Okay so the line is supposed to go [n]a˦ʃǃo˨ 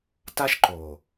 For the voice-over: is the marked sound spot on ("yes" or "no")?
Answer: no